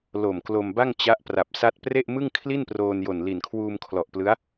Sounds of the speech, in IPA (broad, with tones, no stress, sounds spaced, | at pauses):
l o˨˩ m k l o˧ m b a˥˩ ŋ t͡ɕ a˦˥ ʔ p r a˨˩ p̚ s a˥˩ t̚ p r e˥˩ ʔ m ɯ˥˩ ŋ kʰ l i˥˩ n p r oː˧ n j o˨˩ n l i˨˩ n kʰ w uː˧ m kʰ l ɔ˨˩ ʔ p l ɯ˦˥ a̯